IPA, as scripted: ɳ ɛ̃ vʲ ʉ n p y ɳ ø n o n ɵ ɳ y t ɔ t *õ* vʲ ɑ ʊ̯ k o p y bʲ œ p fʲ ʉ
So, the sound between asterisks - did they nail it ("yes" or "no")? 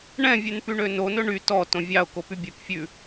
yes